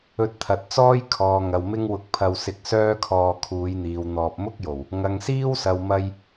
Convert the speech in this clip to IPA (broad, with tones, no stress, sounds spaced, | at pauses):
ɵ˧ t̚ t̪ʰ ɐ˨ t̚ t͡s ɔː˥ j kʰ ɔː˨ ŋ ɐ˨ w m ɪ˥ ŋ w ʊ˧ k̚ pʰ ɐ˧ w s ɪ˧ k̚ s œː˥ kʰ ɔː˧ kʰ uː˨˧ j n̪ iː˨ w n̪ ɔː˧ p̚ m ʊ˥ k̚ j o˨˩ w | ŋ ɐ˨ ŋ s iː˥ w s ɐ˨ w m ɐ˧ j